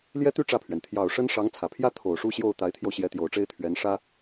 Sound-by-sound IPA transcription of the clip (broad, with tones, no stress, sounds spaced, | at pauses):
l j ɛ˥ t̪ y˥ ʈ͡ʂ ä˥˩ pʰ ɥ ɛ˩ n t̪ʰ j ɑ˨˩ ʊ̯ ʂ ə˥ n ʂ ɑ˧˥ ŋ t͡sʰ ä˨˩ pʰ j ä˥ t̪ʰ o˨˩ ʊ̯ ʂ u˥˧ ɕ j o˥˩ ʊ̯ t̪ a˧˥ ɪ̯ t̪ʰ j o˧ ʊ̯ ɕ j ɛ˧˥ t̪ j o˨˩ ʊ̯ ʈ͡ʂ e˥ ɪ̯ t̪ʰ ɥ ɛ˧˥ n ʂ ä˥